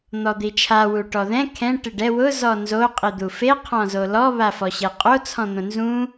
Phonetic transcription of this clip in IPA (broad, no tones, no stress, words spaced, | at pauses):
n̪ɔd̪it͡ʃʰa wuʈɔðɛ̃ kʰɛ̃ ʈɪɖɛ wʊ zɔnzo qʼid̪ufe qʰɔ̃zolɔ βafɔɕeqʼo t͡sʰɔ̃n̪õnzũ